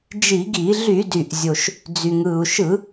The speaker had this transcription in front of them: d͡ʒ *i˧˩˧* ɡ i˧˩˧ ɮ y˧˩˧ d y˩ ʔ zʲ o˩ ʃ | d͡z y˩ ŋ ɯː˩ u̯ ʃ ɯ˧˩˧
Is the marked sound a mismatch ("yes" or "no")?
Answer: no